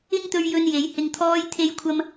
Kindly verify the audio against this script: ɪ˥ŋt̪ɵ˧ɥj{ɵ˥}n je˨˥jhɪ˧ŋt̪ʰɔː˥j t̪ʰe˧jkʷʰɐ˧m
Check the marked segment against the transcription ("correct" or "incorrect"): incorrect